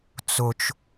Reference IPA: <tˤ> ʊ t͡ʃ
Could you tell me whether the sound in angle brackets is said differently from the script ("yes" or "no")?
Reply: yes